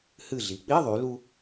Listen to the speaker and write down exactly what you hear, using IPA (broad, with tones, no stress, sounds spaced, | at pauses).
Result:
h ɨ˧˩ ɮ i˩˧ k͡p i˧˥˧ ðˤ y˩˧ l u˧